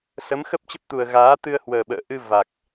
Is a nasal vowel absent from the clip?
yes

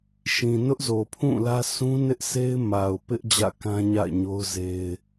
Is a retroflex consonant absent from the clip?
yes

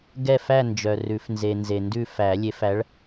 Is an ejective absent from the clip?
yes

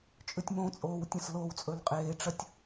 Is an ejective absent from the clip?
no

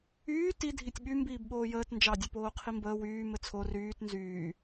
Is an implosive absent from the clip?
no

